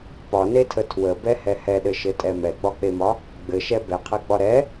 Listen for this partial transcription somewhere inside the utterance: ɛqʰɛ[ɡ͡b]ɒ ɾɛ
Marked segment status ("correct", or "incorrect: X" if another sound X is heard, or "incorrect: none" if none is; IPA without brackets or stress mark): correct